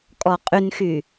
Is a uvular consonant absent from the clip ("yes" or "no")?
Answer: no